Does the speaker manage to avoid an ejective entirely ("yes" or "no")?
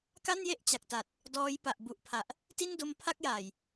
yes